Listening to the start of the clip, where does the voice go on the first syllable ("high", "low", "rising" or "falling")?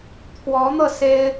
rising